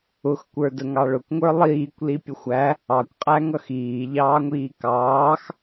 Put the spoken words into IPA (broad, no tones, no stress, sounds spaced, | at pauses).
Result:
ʊ x kʷ ə˞ d ə ŋ ɑ ɭ ʊ kʷ ŋʷ ə˞ lˠ iː kʷ l i pʲ ə xʷ æ | ɑ kʷ qʼ æ ŋ ʌ x iː ʎ ɑː ŋʷ iː k ɑː x